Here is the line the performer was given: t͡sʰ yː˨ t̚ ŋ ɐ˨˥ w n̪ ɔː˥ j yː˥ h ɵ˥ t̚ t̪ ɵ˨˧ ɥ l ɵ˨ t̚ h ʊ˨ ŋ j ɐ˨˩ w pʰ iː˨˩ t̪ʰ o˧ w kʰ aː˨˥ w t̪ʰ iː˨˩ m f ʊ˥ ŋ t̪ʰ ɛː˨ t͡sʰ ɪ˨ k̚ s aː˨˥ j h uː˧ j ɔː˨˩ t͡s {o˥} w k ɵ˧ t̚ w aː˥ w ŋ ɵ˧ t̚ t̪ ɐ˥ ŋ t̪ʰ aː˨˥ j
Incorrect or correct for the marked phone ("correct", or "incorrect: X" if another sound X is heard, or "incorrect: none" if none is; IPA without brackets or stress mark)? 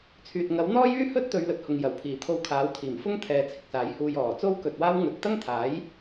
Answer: correct